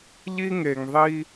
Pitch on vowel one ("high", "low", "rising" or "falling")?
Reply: high